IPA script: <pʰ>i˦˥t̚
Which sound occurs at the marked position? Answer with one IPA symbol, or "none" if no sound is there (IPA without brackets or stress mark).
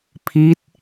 pʰ